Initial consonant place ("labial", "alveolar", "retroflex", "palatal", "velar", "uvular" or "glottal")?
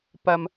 labial